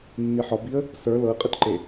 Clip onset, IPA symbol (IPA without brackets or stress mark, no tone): nː